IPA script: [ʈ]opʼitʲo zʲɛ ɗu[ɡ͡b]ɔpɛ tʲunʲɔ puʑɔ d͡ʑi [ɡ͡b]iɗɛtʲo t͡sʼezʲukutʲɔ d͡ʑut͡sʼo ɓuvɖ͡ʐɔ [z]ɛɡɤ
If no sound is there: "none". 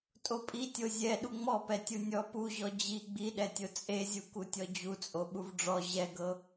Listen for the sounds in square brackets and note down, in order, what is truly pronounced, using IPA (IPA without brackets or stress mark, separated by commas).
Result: tʼ, ŋ͡m, ɡ͡b, ʑ